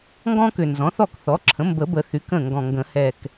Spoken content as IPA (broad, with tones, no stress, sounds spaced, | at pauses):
ŋ ɡ ɔ̃˦ k ʏ˨˩ n z ɔ̃˩˥ θ ɔ˥˩ k θ ɔ˩˥ ǁʰ ə̃˩˥ m b ə˨˩˦ b ə˨˩˦ θ y˩˥ k ə̃˥˩ ŋ ɡ ɔ̃˨˩ ŋ ɡ ə̃˨˩˦ h ɛ˨˩ k